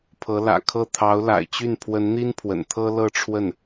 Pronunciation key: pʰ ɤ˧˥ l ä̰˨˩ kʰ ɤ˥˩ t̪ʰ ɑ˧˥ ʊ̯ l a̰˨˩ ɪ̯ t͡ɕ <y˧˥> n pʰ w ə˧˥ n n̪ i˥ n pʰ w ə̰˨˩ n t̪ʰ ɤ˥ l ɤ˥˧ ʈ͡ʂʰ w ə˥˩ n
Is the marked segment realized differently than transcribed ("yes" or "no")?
yes